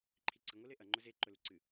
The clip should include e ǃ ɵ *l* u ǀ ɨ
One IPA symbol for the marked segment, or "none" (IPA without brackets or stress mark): l